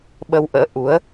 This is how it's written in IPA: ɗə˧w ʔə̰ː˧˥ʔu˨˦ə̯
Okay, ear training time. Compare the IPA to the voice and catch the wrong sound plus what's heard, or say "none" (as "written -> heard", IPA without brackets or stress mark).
ɗ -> ɓ